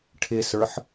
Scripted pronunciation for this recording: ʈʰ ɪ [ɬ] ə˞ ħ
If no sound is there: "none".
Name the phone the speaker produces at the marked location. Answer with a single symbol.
s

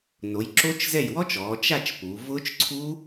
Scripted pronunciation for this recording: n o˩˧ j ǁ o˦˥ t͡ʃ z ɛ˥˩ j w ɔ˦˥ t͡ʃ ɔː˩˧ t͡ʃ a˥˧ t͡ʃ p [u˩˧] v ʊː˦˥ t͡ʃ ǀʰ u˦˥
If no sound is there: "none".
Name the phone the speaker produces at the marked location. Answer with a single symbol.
u˩˧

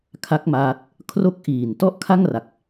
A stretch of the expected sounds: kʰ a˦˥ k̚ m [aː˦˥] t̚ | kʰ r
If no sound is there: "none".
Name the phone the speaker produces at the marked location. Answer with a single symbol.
aː˦˥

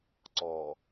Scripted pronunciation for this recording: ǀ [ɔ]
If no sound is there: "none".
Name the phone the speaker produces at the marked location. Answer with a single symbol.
ɔ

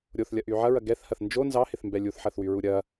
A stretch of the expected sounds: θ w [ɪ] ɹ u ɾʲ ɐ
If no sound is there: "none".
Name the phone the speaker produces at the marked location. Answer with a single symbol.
y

